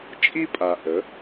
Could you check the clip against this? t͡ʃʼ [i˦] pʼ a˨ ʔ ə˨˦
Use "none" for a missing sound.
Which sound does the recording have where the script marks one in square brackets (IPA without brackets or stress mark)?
i˦